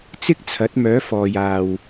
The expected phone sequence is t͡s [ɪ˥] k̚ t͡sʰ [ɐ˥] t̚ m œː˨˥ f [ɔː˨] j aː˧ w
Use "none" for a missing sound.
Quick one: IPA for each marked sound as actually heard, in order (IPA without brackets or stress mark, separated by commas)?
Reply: ɪ˥, ɐ˨˥, ɔː˨